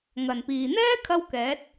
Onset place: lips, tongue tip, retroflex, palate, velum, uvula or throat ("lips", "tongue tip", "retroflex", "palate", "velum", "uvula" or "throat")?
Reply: velum